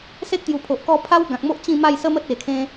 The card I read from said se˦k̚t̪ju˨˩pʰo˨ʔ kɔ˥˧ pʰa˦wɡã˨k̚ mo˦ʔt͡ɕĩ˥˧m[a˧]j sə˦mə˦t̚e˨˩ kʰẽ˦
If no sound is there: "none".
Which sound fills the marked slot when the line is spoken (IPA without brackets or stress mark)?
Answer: a˥˧